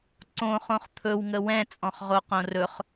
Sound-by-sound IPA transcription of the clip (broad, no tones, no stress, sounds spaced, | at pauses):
ǀ õ χ õ χ t̪ʰ ɵ w ŋ ə w ɛ̃ t͡sʼ ɔ̃ χ ʁ o q õ r ɵ χ